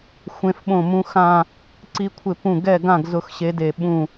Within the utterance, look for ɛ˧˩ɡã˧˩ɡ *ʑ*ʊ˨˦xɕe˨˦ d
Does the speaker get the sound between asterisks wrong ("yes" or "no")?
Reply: yes